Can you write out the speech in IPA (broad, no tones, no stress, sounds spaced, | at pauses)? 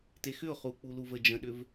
t e x ʏ ʊ̯ χ u k͡p u l u v ə d͡ʒ ə̃ ɗ ʏ v